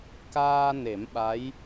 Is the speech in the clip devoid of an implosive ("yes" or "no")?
no